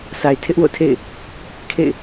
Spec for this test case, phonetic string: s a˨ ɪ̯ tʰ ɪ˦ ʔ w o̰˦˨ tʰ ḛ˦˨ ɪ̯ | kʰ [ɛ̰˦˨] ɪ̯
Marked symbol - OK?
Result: no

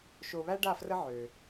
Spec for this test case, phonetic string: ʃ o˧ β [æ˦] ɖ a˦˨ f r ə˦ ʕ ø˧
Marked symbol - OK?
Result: yes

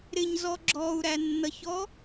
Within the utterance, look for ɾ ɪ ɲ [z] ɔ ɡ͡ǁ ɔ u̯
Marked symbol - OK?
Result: yes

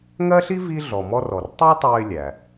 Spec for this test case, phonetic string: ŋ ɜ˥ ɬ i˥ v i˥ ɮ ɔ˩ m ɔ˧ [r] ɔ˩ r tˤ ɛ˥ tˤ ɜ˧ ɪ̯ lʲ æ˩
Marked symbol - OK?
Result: yes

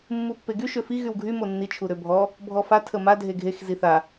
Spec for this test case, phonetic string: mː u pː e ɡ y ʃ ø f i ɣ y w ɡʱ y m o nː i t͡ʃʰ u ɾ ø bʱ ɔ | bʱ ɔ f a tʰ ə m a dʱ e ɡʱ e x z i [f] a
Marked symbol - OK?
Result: no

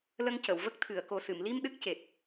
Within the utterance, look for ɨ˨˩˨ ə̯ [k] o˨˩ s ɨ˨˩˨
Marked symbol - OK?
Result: yes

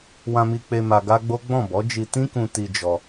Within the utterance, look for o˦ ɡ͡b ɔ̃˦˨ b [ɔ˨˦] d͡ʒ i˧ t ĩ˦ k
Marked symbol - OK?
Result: yes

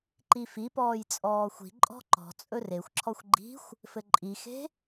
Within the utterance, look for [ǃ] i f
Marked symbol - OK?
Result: yes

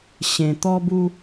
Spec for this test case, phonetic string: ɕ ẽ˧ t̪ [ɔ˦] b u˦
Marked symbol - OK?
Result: yes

